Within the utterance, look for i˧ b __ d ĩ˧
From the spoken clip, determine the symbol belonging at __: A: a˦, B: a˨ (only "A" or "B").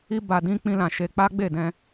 B